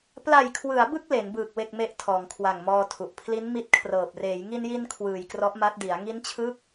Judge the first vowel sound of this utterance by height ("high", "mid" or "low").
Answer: low